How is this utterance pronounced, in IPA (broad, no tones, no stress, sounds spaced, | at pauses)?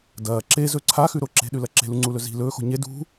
d ɐː ǁ e z ɵ ǀʰ a x ʉ ɾ o ǁ e̤ ɗ ʉ l ɐ ǁ e̤ l u ŋ͡ǀ u l ɵ z i̤ l ɵː x o̤ ɲ e d ṳ